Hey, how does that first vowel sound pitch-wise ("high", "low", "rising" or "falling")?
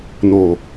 low